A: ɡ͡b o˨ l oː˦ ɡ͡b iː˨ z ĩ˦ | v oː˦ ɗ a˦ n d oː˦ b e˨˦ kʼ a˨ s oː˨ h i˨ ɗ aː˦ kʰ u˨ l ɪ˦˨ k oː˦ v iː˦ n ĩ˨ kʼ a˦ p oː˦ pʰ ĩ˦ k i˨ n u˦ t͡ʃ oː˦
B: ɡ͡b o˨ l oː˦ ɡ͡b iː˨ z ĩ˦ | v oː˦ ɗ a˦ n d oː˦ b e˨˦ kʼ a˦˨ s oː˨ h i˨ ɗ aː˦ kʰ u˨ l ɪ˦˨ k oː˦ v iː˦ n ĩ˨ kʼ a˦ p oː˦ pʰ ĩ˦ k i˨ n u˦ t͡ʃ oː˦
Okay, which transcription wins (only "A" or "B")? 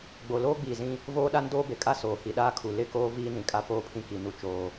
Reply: B